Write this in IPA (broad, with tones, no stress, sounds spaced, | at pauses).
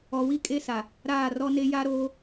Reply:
ɔ˨ w i˦ kʼ e˦ s a˨ | ɾ aː˦˨ r ɔ˦ n e˦ j a˦ ɾ oː˦